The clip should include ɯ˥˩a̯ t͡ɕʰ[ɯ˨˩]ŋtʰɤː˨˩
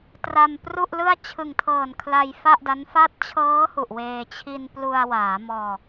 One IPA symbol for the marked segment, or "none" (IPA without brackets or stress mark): ɯ˨˩